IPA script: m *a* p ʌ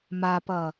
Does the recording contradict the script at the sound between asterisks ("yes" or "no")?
no